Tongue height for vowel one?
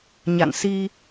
low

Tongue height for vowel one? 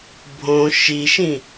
mid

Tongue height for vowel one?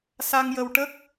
low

